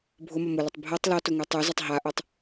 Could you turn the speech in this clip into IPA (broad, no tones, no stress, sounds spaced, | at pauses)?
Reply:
bʱ ʊ m ʌ m ʊ l ʊ tˤ bʱ ɤ tˤ l ɔ t ʊ ŋ u tˤ u z ʌ tˤ ɦ a ʔ o tˤ